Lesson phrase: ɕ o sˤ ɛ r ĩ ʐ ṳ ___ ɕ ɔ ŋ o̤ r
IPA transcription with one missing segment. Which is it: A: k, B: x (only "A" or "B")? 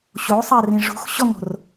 B